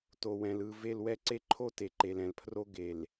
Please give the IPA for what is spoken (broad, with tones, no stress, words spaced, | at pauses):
to˨wɛ̃˨lɯ˦˨ ve˦˨lwɛ˦ǀe˦ǃʰo˦ te˨ǃe˨lɛ̃˨lpʰro˦ ɡe˨l